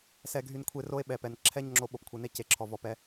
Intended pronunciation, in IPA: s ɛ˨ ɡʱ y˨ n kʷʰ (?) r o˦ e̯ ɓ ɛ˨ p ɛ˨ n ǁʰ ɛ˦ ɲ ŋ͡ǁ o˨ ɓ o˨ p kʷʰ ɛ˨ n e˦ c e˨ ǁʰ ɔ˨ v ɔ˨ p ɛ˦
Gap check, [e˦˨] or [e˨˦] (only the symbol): e˦˨